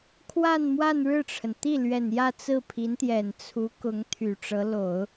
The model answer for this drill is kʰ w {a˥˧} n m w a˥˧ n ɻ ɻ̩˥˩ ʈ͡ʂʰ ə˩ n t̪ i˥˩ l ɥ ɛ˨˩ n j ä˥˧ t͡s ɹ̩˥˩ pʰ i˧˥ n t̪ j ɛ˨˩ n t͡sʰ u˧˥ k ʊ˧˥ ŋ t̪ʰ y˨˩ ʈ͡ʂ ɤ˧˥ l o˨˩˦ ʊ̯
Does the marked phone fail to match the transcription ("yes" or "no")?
no